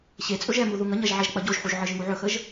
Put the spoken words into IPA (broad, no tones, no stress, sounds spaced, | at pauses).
ɕ e t͡sʼ ɵ ʒ ɛ m u ð u ŋ ə ɲ ɐ ʒ ʕ ɛ ʒ k͡p ɐ ɟ o ʒ ħ u ʒ ʕ ɨ ʒ ŋ u ʕ ɵ x ə ʒ